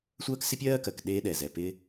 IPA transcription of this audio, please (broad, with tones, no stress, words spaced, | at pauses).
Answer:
sʷɜː˥ksɪ˥pʲɜː˥kɜ˩k ɗeː˥ɗɛ˩zɛ˩pɪ˥